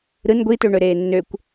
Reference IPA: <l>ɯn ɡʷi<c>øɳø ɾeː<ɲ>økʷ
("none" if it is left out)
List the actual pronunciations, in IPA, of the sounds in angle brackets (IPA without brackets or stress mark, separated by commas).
ɾ, t, nː